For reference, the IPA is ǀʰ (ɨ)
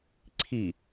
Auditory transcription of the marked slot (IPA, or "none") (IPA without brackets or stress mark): i